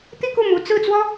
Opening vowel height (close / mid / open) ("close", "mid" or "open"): close